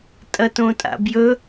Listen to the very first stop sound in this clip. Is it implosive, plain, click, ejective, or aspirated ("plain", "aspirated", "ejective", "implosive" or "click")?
ejective